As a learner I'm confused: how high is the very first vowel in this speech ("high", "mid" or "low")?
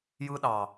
high